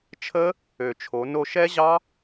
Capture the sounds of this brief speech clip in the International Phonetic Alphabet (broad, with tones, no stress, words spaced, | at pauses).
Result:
t͡ʃʰə˦˥ | ø˨˩t͡ʃʰo˩˧no˧ ʃɛ˦˥ʑɑ˦˥